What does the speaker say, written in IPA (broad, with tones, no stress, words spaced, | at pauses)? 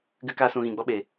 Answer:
ɡɨ˧kaː˧sũ˨ ɣĩ˨ɡ͡bɔ˦ɓe˨